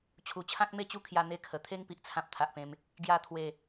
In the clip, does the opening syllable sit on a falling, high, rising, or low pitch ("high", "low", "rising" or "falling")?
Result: low